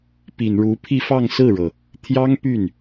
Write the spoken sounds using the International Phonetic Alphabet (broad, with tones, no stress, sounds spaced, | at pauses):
p i˨˩ n ɻ u˧˥ pʰ i˥˧ f ɑ˥˧ ŋ s ɹ̩˥˩ ɻ ɤ˩ | t̪ʰ j ɑ˥ ŋ p y˥˩ n